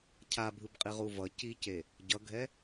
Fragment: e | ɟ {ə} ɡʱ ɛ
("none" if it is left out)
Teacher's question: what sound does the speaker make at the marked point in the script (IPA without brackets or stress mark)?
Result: ʌ